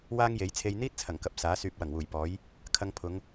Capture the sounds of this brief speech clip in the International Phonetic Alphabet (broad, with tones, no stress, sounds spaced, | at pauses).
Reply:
w aː˥ ŋ j e˨˥ j t͡sʰ e˧ j n̪ iː˥ t̚ t͡sʰ ɐ˨˩ ŋ k ɐ˨ p̚ s aː˨˥ s yː˨ p̚ w ɐ˨˩ ŋ w uː˨˩ j p ɔː˨˥ j | kʰ ɐ˧ ŋ pʰ ʊ˨˧ ŋ